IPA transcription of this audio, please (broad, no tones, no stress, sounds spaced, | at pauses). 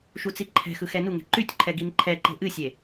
ʃ u t͡s i ǃʰ ɛ̤ x ɯ x ɛ n u ŋ ɛ̤ ǃ y tʲ ǃʰ ɛ ɡ i n ǃʰ ɛ ǃ e̤ ʔ ɨ sʲ e